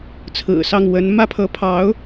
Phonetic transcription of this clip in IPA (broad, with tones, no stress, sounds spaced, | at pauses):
t͡sʰ ɹ̩˨˩ s ɑ˥˩ ŋ w ə˧˥ n m ä˥ pʰ ɤ˧˥ pʰ ɑ˧˥ ʊ̯